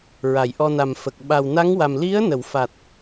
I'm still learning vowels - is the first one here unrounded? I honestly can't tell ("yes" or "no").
yes